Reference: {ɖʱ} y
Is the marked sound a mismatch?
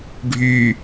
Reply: no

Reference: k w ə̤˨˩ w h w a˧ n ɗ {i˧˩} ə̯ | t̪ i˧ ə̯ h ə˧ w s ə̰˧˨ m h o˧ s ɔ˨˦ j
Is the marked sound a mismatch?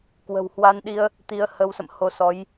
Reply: yes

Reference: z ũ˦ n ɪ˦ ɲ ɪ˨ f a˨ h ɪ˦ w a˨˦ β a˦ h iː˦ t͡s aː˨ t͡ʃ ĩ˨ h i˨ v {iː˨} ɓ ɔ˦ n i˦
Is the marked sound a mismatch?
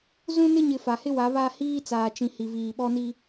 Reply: no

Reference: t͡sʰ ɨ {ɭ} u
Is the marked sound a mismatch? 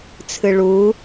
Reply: no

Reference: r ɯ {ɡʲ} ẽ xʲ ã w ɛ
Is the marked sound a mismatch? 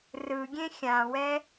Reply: no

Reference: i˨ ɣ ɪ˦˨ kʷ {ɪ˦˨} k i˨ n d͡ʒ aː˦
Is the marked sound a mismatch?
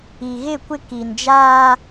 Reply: no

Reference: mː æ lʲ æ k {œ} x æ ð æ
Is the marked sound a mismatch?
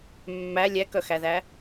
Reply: no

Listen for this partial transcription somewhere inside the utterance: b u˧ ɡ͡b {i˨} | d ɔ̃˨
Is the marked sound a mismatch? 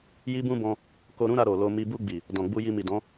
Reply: no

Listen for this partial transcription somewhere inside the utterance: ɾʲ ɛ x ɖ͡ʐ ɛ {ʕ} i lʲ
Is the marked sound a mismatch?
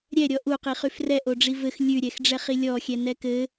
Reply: yes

